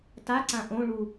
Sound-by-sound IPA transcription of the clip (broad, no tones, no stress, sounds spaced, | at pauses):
t a ǀ ã ʔ õ ɭ u